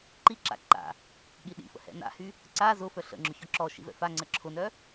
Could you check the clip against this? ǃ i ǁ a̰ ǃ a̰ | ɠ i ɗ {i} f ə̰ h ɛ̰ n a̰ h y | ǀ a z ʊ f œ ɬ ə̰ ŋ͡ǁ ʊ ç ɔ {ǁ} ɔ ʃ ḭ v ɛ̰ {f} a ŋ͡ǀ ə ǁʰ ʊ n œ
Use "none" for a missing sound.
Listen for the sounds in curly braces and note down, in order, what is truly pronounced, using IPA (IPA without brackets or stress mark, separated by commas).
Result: ḭ, ǁ, f